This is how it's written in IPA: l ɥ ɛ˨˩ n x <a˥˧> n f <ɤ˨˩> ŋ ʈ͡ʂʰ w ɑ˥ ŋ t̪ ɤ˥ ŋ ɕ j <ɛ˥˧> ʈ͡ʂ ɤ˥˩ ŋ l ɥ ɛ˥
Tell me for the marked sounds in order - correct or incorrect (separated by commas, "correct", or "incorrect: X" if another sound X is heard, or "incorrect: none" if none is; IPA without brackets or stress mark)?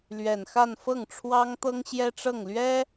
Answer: correct, incorrect: ɤ˥˩, incorrect: ɛ˥